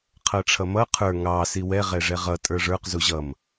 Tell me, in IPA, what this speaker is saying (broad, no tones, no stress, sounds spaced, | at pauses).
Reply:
qʰ ʌ ʈ͡ʂʰ ʌ m ʌ qʰ ə˞ ŋ ɑ s i w ɛ ʁ ɛ ʐ ɛ ʁ ʌ tʼ ə˞ ʐ ə˞ q z u ʑ ʌ m